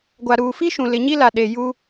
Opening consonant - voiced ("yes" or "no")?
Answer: yes